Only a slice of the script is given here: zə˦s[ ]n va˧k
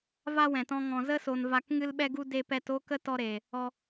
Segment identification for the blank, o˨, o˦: o˨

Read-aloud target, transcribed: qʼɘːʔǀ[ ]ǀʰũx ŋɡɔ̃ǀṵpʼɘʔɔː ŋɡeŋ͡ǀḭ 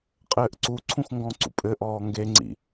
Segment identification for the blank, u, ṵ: u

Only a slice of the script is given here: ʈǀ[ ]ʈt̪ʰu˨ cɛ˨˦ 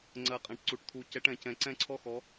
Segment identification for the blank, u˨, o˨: u˨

